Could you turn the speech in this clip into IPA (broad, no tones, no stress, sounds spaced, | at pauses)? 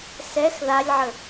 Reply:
s ɛ x ð a lʲ ʕ ə